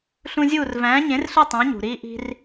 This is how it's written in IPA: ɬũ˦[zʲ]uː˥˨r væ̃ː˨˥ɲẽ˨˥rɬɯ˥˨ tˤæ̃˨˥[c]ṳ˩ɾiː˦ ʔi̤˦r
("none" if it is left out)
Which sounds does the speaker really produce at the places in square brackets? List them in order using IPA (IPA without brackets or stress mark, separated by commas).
zʲ, ɲ